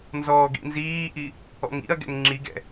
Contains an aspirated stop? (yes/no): no